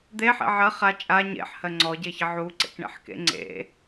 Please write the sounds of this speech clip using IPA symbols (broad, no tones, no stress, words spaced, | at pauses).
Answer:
d̪eħḛ ʕɜ χa t͡ʃʼa ɲḛħhɜ ŋ͡ǀɔɟeçə ʕuǀḛkɳḛħkḛ ŋ͡ǀḛ